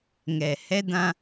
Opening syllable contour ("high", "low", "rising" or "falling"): low